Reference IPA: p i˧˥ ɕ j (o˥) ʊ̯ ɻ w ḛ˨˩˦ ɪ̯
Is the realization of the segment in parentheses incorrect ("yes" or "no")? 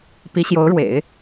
yes